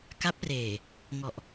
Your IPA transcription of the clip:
ka˦˥p̚reː˨˩ | ŋɔ˨˩ʔ

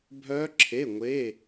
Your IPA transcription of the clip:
bʱœː˦˥ǁʰe˧˥˧ŋʷe˧˥˧

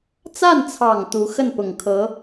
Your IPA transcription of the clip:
t͡sa˥˩nt͡sʰɑ˨˩ŋ t̪u˧˥ xə˥˩npʊ˨˩ŋkʰɤ˧˥

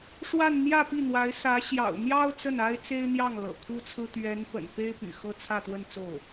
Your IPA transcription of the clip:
ʂwa˥˧nn̪jä˥˧pi˥˩n̪wa˧˥ɪ̯ sä˧˥ ɕjɑ̰˨˩ʊ̯n̪jɑ˥ʊ̯ t͡sə˥˩na˥ɪ̯ t͡se˥ɪ̯n̪jɑ˥˩ŋ lɤ̰˨˩kʰu˥t͡sʰɹ̩˥ t̪ɥɛ˧˥n pə̰˨˩npe˥ɪ̯ py̰˨˩ xɤ˥t͡sʰä˥˧t̪wə˥˧nt͡so˥˩ʊ̯

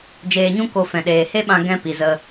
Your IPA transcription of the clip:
d͡ʒeː˨ɲũ˧ko˨ fɛ̃˨ɗeː˨he˦ɓã˧ ɡɛ̃˧ pi˨zə˧

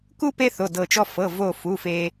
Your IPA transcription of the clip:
ku˦ pe˦θo˩˧˩ dɤ˧˩t͡ʃɔ˦ fɤ˩˧˩vo˧˩fu˩˧˩ fe˦

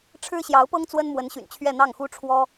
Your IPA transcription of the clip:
ʈ͡ʂʰɻ̩˥ɕjɑ˧˥ʊ̯pɤ˥ŋ t͡swə˥nmwə˧˥nɕy̰˨˩nt͡ɕʰɥɛ˥˧ n̪ɑ˥˩ŋxu˥ʈ͡ʂʰwɔ˥

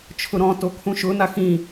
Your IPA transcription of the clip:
t͡ʃʰʊɾɔ̃to kʰũʃʊna xĩ

